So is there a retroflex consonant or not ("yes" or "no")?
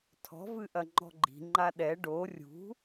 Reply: yes